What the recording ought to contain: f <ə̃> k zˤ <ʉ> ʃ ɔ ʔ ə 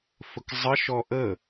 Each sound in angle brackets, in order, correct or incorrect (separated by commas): incorrect, incorrect